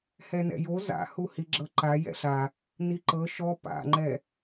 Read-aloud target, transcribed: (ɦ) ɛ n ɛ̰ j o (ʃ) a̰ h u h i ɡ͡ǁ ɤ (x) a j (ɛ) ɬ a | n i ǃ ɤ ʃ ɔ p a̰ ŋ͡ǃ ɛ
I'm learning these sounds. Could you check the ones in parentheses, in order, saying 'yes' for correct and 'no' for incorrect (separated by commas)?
no, no, no, no